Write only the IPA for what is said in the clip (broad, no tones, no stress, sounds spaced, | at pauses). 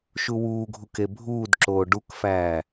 ʃ u w uː ɡʱ u k e bʱ uː d ǁ oː ɖ u k f æː